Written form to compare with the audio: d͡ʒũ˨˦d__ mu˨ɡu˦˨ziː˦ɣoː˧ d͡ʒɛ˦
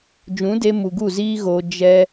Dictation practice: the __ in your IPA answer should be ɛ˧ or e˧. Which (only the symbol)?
e˧